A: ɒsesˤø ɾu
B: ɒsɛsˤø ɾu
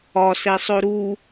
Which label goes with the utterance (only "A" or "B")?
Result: B